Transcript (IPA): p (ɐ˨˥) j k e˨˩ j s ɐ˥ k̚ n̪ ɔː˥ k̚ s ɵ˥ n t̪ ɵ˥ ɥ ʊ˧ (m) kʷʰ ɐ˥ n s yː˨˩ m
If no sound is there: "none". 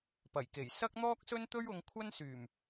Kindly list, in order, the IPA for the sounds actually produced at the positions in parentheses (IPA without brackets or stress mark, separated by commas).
ɐ˨˩, ŋ